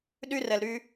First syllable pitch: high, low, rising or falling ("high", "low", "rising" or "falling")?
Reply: high